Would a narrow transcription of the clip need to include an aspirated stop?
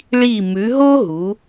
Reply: no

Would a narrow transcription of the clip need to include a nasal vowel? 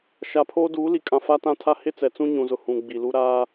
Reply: yes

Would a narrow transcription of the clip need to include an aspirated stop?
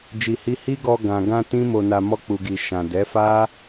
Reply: no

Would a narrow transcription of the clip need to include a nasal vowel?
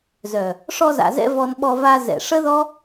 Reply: no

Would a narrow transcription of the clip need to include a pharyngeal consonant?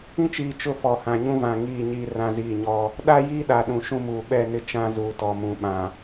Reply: no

